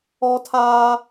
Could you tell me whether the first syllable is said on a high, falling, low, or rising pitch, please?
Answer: high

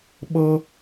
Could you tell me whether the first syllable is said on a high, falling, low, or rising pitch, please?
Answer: high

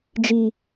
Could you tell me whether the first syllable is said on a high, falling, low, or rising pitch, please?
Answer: low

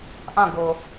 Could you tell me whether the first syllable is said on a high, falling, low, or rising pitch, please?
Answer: falling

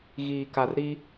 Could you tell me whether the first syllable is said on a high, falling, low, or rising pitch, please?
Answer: low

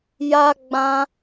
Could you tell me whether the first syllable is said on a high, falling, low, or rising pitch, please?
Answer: high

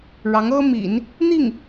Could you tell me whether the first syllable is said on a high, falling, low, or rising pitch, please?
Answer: rising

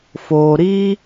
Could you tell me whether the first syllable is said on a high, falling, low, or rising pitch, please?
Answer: low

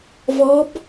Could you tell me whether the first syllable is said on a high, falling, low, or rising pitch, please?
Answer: rising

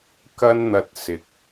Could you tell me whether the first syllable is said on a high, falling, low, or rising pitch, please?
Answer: high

